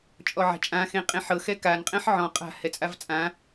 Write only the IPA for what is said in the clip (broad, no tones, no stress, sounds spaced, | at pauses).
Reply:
t͡ʃʼ ɔ ʕ a̤ t͡ʃʼ ã x ẽ qʼ ẽ ħ ɤ x ɛ k a n qʼ ɛ̃ ħ ʕ ɔ̃ qʼ a̤ h ɛ t͡sʼ a v t͡sʼ ã